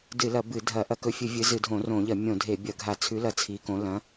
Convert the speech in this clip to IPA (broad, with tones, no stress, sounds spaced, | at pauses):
d ɨ˧˩˧ l ɐ˧˩˧ b ɨ˧˩˧ dʱ ɐ˧˩˧ ʔ ɐ˧˩˧ k ɵ˨˦ fʲ ɨ˧˩˧ vʲ ɨ˨˦ z ɨ˧˩˧ dʱ õ˧˩˧ r õ˧˩˧ ʎ ɐ˧˩˧ mʲ õ˧˩˧ dʱ e˧˩˧ bʲ ɐ˧˩˧ ɡʱ a˧˩˧ t͡sʰ ʉ˨˦ l ɐ˧˩˧ t͡sʰ i˨˦ k õ˨˦ l ɐ̃˨˦